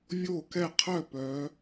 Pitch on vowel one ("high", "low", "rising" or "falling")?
falling